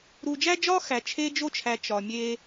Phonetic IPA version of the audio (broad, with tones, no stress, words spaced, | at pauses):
ɾu˧d͡ʒæ˥d͡ʒɒ˥ xæ˧t͡ʃʰe˥d͡ʒo˥t͡ʃʰæ˧ t͡ʃɒ˧mʲe˥